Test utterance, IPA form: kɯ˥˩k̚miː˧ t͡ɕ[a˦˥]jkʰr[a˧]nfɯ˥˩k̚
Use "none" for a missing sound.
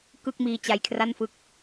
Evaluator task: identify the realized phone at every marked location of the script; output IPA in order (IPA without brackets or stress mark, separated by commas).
a˧, a˥˩